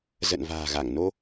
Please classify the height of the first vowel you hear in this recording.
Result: mid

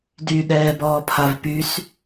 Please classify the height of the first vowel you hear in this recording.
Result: high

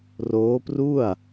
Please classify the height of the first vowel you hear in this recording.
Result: mid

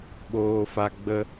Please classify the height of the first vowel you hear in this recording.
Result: mid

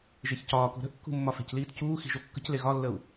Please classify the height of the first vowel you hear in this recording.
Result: mid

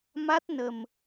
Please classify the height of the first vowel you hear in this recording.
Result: low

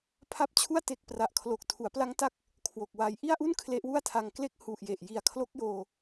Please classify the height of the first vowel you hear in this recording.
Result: low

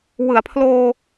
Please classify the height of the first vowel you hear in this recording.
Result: high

